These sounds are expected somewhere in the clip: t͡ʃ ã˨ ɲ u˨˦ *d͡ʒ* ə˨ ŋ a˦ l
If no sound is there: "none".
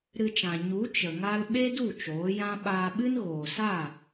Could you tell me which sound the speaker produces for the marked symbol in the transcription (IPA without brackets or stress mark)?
t͡ʃ